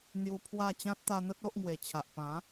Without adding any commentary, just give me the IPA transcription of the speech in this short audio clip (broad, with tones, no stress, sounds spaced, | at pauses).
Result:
n̪ j u˧ pʰ w a˥˧ t͡ɕ ã˦ t̚ t̪ a˧ n̪ ə˦ t̚ o˦ ʔ ŋ w e˨˩ t͡ɕʰ a˨ ʔ p ã˨˦